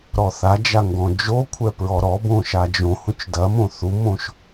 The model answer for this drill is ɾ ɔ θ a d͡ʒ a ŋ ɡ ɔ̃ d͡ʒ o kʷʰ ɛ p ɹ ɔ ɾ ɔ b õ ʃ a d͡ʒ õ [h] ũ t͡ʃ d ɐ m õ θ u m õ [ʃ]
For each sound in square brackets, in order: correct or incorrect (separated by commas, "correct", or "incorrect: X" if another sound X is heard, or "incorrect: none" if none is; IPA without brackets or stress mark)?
correct, correct